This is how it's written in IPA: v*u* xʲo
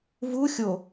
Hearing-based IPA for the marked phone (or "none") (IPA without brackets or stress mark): u